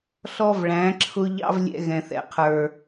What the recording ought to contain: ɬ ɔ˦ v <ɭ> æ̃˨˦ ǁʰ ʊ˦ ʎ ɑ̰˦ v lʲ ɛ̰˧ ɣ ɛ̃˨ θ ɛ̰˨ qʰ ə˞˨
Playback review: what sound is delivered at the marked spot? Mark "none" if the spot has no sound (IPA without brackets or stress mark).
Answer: ɭ